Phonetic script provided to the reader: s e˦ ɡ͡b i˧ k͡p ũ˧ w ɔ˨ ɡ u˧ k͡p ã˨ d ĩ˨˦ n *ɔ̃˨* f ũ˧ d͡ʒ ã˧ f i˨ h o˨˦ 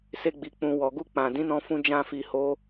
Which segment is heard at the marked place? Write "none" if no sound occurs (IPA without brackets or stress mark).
ɔ̃˧